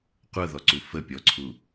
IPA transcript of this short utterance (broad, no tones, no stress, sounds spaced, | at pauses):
qʷ ɤ ð ɔ ǀ u f ə pʲ ɔ ǀʰ u